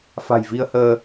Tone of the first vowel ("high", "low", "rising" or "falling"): low